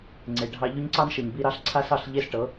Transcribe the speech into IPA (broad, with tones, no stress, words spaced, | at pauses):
ŋ͡ǀe˨ɖʱɑ˧ ʎɵ˦ɲǀɑ˦nʃɤ˨ɲ bi˧ɾɑ˧ɬ ǀʰa˦sɑ˦˨ɬ ʎe˦sʈɤ˨˦